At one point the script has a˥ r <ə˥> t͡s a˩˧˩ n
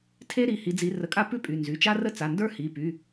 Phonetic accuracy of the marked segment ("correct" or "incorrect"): correct